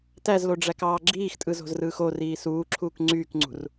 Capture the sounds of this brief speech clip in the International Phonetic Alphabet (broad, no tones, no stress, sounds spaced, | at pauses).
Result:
t æ z l o ɖ͡ʐ æ k ɑː ɡ͡ǁ iː x tʼ ɯ z o̤ z r ɯː x o r iː s uː ǁʰ uː k ŋ͡ǀ yː k ŋ͡ǀ ṳ r